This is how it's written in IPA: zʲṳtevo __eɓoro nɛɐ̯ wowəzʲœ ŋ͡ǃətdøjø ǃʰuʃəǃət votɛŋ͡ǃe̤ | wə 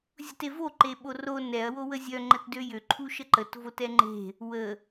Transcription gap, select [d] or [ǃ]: ǃ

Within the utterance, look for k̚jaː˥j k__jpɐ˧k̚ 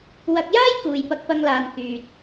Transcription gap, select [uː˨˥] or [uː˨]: uː˨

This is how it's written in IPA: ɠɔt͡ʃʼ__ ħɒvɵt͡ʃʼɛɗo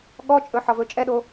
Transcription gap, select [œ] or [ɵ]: ɵ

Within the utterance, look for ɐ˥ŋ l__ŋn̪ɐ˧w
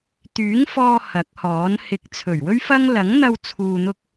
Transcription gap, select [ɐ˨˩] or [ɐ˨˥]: ɐ˨˥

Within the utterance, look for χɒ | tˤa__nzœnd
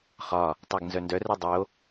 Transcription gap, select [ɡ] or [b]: ɡ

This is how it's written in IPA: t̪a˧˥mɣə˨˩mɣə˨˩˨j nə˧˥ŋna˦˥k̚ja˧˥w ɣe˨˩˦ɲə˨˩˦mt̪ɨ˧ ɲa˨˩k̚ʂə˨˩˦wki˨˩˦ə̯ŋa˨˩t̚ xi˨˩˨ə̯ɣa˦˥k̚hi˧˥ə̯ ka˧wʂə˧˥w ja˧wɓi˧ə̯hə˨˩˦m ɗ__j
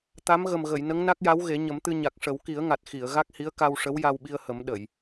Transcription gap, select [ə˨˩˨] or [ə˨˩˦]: ə˨˩˨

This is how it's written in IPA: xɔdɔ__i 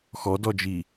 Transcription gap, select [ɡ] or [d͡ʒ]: d͡ʒ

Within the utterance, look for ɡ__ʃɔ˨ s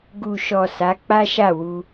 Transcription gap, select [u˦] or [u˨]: u˨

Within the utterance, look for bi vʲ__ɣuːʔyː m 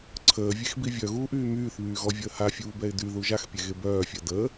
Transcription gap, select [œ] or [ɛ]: œ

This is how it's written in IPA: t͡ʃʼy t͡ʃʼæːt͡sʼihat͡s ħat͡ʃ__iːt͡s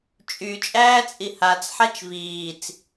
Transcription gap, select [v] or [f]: v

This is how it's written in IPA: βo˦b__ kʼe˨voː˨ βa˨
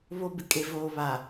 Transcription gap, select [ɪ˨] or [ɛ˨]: ɪ˨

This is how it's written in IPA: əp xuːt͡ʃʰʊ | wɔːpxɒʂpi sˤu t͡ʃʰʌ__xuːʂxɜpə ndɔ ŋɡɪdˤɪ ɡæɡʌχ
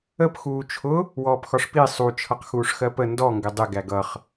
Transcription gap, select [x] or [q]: q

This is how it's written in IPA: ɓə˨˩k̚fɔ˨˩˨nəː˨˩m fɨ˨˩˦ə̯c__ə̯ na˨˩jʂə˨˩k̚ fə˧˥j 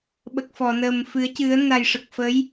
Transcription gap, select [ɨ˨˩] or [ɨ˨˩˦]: ɨ˨˩˦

